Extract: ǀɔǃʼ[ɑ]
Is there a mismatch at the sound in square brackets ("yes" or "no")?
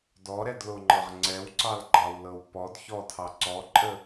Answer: yes